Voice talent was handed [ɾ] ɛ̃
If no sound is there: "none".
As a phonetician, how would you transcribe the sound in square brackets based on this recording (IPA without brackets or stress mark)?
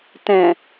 t